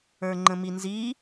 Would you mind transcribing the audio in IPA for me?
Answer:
ə˞ ŋ͡ǃ ə̃ m i n z i

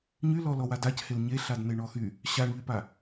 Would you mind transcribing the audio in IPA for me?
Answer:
ɲ y l ɔ l ɔ w a d a c h e l ɲ e ɬ a d n e ɳ ɔ x y | ɕ a ɳ ʎ y p a

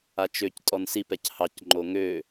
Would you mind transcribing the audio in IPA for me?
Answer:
a t͡ʃ ø c tʼ ɔ n s i p ɛ c h ɑ c ŋ͡ǃ o ŋ ø

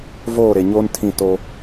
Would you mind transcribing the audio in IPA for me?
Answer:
v oː˦˨ ɾ e˨ ɲ oː˦ n tʰ ĩ˦˨ t o˦

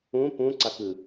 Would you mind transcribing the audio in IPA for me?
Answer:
ũ p ũ ǀ a k ɯ

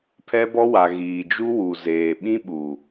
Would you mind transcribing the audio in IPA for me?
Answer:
pʰ ɛ˦ b ɔ˦ w a˨ ɣ iː˨ d͡ʒ u˦ w u˨ z eː˨ ɓ ĩ˦ ɓ u˨

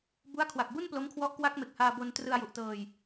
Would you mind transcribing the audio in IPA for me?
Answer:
b u˦˥ a̯ kʰ w a˨˩ k̚ b u˥˩ n p l o˦˥ m kʰ w ɔ˦˥ ʔ k w a˦˥ k̚ m e˨˩ k̚ h aː˧ b o˧ n t r ɯ˧ a̯ j u˨˩ ʔ t ɤː˧ j

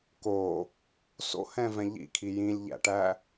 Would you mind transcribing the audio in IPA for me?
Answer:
k o | s o̰ h ɛ̃ v ɛ̃ ʎ ḭ kʰ i j ĩ lʲ ʎ æ̰ ʈ æ

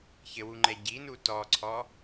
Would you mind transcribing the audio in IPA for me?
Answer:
ç ɘ w u ŋ͡ǃ ɛ ɟ i n u t ɔ ǀʰ ɔ

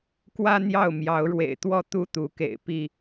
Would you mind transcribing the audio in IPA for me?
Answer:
k w ä˦ n̪ j ɑ˥˨ ʊ̯ m j ɑ˨˦ ʊ̯ ɻ w ḛ˨˩ ɪ̯ t̪ w ɔ˥˨ t̪ u˥˨ t̪ u˨˦ k ḛ˨˩ ɪ̯ p i˥˨

